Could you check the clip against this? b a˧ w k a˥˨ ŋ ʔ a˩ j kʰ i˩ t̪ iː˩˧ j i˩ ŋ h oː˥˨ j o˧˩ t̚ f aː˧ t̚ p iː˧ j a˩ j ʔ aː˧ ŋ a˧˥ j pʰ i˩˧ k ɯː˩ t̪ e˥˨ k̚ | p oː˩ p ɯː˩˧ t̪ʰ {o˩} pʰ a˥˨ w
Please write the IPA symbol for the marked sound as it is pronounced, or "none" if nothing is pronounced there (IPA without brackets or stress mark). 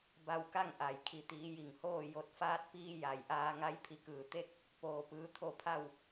o˧˩